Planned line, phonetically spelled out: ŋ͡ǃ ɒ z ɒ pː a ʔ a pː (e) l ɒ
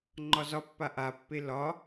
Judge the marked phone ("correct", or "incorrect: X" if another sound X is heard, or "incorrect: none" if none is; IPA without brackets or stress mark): correct